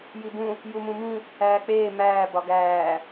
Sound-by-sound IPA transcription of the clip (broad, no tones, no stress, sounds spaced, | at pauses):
j i b ũ | j u m ũ m ĩ | æː k͡p eː m æː b ɒ ɡ æː